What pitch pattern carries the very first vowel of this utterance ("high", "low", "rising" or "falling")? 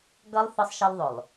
high